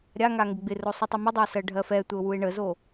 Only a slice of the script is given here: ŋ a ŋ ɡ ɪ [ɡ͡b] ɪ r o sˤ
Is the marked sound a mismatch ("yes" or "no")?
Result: no